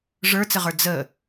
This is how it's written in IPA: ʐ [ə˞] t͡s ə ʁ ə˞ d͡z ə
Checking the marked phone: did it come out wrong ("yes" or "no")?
no